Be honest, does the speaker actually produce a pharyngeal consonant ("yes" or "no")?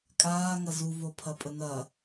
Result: no